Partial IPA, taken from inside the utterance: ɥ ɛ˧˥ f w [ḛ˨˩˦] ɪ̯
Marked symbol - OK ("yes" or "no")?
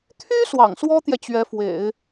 yes